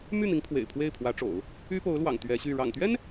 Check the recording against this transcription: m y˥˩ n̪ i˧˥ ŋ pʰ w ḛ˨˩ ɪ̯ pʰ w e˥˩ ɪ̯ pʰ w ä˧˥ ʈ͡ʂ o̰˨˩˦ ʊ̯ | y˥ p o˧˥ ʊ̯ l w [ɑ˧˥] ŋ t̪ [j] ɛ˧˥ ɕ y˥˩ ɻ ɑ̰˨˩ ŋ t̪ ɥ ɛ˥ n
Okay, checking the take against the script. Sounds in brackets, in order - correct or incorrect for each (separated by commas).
incorrect, incorrect